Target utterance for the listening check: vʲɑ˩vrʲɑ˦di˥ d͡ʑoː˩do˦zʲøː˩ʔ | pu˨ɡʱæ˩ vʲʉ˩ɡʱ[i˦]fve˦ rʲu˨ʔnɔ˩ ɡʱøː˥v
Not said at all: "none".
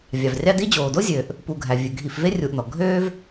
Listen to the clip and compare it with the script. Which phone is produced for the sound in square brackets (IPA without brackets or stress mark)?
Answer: i˨